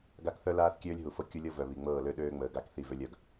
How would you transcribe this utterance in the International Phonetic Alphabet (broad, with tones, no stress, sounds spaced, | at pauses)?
ɡ a˦ k θ œ˦ l aː˦ θ kʲ øː˦ lʲ ɦ u˨ f ɤ˦ kʲ u˦ lʲ ɤ˦ v œ˨ β i˨ ŋ͡m ɤː˦˨ l ø˦ ɗ øː˦ ŋ͡m əː˨ ɡ a˦˨ k θ i˦˨ v ø˦ lʲ œ˨ ɡ